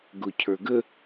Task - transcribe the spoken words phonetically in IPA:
ɡ ʊ cʰ ə˞ ɡ ə

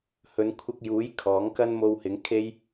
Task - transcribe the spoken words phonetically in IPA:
h ɵ˨˧ n kʷʰ ɪ˧ k̚ j uː˨˥ j kʰ ɔː˨˥ ŋ k ɐ˥ n m o˧ w h ɪ˨˥ ŋ kʰ e˥ j

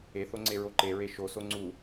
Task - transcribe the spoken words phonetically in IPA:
e θ o ŋ͡ǀ e ɹ o ǃ e ɹ e ʃ o s o ŋ͡ǀ u

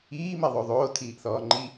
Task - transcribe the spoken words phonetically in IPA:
iː m e ðˤ o ðˤ oː tʰ iː ʔ θ ɔː ŋ͡ǃ i

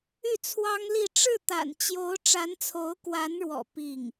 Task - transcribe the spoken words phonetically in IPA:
y˥˩ t͡sʰ w ɑ˥ ŋ l i˥˧ ʈ͡ʂ ɻ̩˥˩ t̪ a̰˨˩ n t͡ɕ j o˧˥ ʊ̯ ʈ͡ʂ a˧˥ n t͡sʰ o˧˥ ʊ̯ k w a˧˥ n ɻ w ɔ̰˨˩ p i˥˩ ŋ

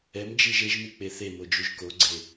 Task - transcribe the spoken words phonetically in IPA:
ɛ m d͡ʒ i ʒ e ʒ m i k͡p e θ e m o d͡ʒ u ʒ k o ɡ͡ǀ e

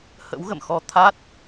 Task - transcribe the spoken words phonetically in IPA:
h ə̰˧˥ w ɣ ə̰˧˨ m x ɔ˧ t̪ʰ a˦˥ t̚

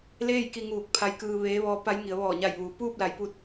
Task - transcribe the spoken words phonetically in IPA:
l eː˥˨ j k i˧ ŋ uː˧˩ k̚ pʰ a˧˥ j k ɯː˧ ʋ eː˧˥ ʋ ɔː˧˥ p a˧˥ j ŋ i˩˧ ə̯ ʋ ɔː˧˩ ɲ a˧˩ j ʋ uː˩˧ p uː˥˨ p̚ l a˩˧ j p u˧ t̚

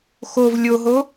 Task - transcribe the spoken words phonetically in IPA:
x o v lʲ o ɦ o

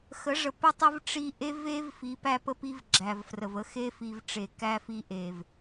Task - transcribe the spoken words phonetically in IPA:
x ə˨˦ ʐ ə˨ p ə˦ tˤ ə˦ v ʈ͡ʂ i˦ ʔ e˦ v e˦ v f i˨˦ p æ˦ p ə˦ p i˦ v ɡ͡ǁ æ˨ v f r ə˨ v ə˦ x e˦ f i˨ v ʈ͡ʂ e˨ k æ˦ f i˦ ʔ e˨ v

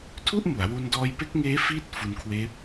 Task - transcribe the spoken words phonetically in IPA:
tʰ u˥˩ ʔ m u˩˦ a̯ w u˧ n d ɔː˧ j p e˦˥ k̚ ŋ eː˦˥ f iː˥˩ t̚ f u˧ n kʰ w eː˦˥ p̚

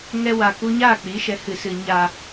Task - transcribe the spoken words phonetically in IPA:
ŋ ɛ˧ w a˨ k u˧ ɲ aː˦˨ k͡p i˨˦ ʃ ɛ˨˦ h ɨ˨ s ɨ˨ ɲ a˨

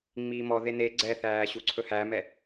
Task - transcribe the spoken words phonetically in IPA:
ŋ͡m iː m ɔ ð e n e ɡ͡ǀ ɛ θ æː ɕ u ǀʰ ɵ h æ m ɛ

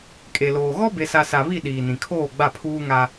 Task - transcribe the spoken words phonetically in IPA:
kʼ e˨ l oː˨ ɣ ɔ˦ b e˨ s a˨ s a˨ β i˦˨ ɗ iː˨ n ĩ˨ kʰ oː˦˨ ɡ͡b a˦˨ pʰ uː˦ ŋ a˦

